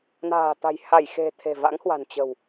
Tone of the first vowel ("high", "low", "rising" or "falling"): low